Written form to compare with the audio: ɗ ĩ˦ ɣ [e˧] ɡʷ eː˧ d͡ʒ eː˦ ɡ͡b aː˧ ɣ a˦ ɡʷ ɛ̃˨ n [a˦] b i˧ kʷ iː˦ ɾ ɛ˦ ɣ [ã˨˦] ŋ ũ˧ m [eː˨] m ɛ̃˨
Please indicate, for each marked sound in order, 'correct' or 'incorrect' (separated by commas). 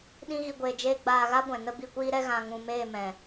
incorrect, incorrect, incorrect, incorrect